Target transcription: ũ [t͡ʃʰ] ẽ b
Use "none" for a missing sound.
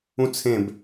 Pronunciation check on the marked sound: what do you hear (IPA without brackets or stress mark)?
t͡sʰ